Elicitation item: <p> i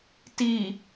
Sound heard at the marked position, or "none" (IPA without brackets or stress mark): t